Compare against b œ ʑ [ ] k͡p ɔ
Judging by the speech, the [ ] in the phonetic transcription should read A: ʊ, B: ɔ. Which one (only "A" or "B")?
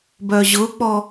A